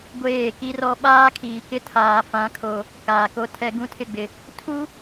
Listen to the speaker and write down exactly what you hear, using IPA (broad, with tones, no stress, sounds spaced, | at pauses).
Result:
ɡʷ eː˦˨ k i˦ r ɔ˦ ɓ aː˦ kʰ iː˨ k ɪ˦ tʰ aː˨ f ã˨˦ kʰ o˨ | k aː˨ k o˦ tʰ ɛ˦ ɡ ũ˦ tʰ ɪ˦˨ ɡ͡b ɪ˨ | tʰ u˦